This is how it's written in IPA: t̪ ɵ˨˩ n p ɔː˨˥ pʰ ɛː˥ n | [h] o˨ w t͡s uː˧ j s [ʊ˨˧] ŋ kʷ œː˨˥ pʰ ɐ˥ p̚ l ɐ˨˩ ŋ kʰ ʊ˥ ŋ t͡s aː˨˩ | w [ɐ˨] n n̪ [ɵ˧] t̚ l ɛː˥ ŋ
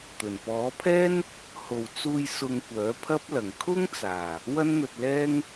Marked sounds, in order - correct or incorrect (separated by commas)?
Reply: correct, incorrect, incorrect, correct